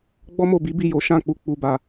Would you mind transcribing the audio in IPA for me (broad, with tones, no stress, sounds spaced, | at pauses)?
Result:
ɡ͡b ɔ˦ m o˦˨ b i˨˦ b i˦˨ j o˨˦ ʃ ã˦˨ k͡p u˧ k͡p u˧ b a˧